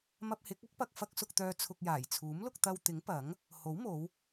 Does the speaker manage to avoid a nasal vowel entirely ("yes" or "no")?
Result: yes